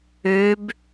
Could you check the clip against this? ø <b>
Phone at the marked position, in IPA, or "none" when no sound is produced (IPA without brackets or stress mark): b